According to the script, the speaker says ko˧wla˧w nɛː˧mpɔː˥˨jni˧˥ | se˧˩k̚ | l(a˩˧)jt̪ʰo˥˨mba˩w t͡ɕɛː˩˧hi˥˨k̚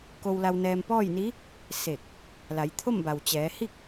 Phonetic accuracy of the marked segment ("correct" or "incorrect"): correct